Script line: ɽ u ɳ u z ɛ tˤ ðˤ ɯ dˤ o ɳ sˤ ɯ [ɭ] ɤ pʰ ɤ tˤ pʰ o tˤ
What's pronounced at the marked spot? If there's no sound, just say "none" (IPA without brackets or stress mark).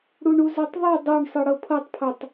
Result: ɽ